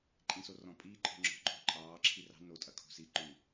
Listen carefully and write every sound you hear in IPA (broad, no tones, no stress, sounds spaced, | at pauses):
ǃʼ ĩ s o r ɔ̃ pʼ iː ǃʼ ɔ̤ ŋ͡ǁ ɔ̤ ǃʼ o̤ ǃʼ ɑː ǁʰ i r ɑ̤ n o tʼ ɐ kʰ o̤ s i ǃ ʉ